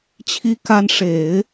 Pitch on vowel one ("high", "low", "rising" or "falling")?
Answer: high